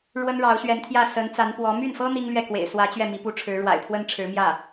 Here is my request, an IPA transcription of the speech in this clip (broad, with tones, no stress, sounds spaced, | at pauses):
ɻ w ə˥ n ɻ ɑ˧˥ ʊ̯ ɕ ɥ ɛ˧˥ n t̪ʰ j ä˥˩ s ə˧˥ n t͡s a˧˥ n p w ɔ˧˥ m y˥˩ n f ɤ˥ n̪ i˥ ŋ l ɥ ɛ˥˩ k w ḛ˨˩ ɪ̯ s w ä˧˥ t͡ɕ ɥ ɛ˥˩ m i˧˥ p u˥ ʈ͡ʂʰ ɻ̩˧˥ ɻ w a̰˨˩ ɪ̯ pʰ w ə˥ n ʈ͡ʂʰ ɻ̩˧˥ m j ä˥˩